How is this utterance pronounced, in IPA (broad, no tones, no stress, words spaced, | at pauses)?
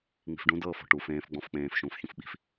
ŋ͡mi̤fɖũ dɤːfɔ̤ ʈu fẽːfɡ͡bɔ̃f k͡pẽːf ʃũːfçũfɓi̤f